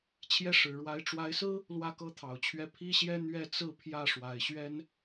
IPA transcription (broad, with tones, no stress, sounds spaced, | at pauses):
t͡ɕʰ j ɛ˥˩ ʂ ɻ̩˨˩ ɻ w a˧˥ ɪ̯ ʈ͡ʂ w a˧˥ ɪ̯ s ɹ̩˥ | l w ä˥˩ k ɤ˥ t̪ʰ ɑ˨˩ ʊ̯ t͡ɕʰ ɥ ɛ˥˩ pʰ i˥ ɕ j ɛ˥ n̪ ɥ ɛ˥˧ t͡s ɹ̩˥˧ pʰ j ä˥˩ ʂ w a˨˩ ɪ̯ ɕ ɥ ɛ˥ n